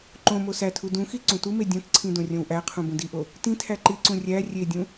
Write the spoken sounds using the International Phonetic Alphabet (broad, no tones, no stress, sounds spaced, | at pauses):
ǃ õ m o s æ tʰ u d ũ x i ǀ ũ t u m e dʲ õ t ǀʰ ĩ d õ rʲ õ w ʔ æ qʰ ũ b ũ d i ʔ o | t ĩ tʰ æ ǃ i ǀ ũ rʲ æ rʲ e dʲ ũ